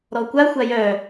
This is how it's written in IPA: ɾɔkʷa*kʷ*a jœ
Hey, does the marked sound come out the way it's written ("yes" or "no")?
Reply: no